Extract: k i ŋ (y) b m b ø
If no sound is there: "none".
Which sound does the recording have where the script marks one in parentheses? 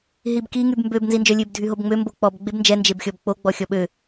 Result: y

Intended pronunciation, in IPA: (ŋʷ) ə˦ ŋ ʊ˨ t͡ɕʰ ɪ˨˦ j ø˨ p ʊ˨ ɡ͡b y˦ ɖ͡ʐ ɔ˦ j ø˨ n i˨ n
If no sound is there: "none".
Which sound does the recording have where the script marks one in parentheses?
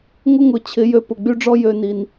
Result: ŋʷ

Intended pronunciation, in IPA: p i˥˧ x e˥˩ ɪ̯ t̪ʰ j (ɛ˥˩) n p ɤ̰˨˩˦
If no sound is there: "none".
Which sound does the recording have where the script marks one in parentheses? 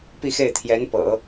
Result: ɛ˧˥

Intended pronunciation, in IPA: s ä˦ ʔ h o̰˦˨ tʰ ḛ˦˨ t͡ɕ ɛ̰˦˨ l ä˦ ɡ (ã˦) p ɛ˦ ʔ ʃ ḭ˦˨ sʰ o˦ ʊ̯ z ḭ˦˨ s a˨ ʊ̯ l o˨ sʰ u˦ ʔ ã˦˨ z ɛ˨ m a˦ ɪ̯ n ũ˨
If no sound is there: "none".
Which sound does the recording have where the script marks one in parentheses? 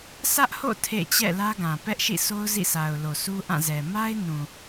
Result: ã˨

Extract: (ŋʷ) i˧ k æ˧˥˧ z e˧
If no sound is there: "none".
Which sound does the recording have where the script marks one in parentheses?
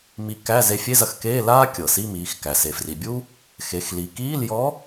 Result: m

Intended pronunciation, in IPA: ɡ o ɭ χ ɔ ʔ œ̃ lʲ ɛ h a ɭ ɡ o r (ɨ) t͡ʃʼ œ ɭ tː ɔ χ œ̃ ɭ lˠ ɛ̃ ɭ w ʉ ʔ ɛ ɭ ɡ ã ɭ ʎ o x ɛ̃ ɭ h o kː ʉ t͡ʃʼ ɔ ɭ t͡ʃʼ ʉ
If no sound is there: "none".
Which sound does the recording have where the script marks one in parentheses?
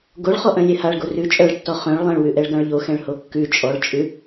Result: ʉ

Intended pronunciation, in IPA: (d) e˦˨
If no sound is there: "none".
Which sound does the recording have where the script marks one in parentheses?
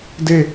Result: d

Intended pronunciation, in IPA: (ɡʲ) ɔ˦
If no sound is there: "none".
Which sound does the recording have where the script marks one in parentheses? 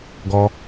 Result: ɡ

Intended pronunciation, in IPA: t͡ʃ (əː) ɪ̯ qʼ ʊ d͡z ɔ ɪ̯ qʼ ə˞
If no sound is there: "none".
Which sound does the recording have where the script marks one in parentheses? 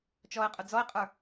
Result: ɔː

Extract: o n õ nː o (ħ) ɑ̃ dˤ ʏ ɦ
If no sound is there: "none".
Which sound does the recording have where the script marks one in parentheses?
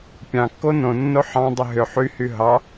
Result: ħ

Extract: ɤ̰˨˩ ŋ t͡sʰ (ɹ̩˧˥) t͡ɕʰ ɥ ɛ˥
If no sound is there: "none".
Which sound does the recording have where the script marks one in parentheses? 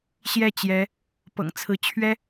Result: ɹ̩˧˥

